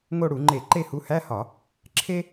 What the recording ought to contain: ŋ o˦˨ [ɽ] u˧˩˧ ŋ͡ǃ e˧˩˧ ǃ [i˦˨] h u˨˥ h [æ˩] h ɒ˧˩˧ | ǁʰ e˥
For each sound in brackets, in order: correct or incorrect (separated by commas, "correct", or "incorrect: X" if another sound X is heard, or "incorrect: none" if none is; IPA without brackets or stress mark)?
correct, incorrect: e˦˨, incorrect: æ˧˥˧